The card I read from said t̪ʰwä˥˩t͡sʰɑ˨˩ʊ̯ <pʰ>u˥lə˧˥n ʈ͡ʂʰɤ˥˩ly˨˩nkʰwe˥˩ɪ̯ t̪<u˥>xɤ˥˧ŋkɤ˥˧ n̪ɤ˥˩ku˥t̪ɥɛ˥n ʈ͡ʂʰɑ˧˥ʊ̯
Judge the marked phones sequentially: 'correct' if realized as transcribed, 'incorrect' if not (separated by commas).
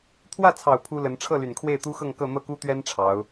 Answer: correct, correct